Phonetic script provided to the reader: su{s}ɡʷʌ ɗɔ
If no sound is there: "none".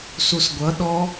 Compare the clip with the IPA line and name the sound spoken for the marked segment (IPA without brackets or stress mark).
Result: s